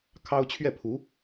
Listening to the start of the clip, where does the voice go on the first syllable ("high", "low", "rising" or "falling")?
high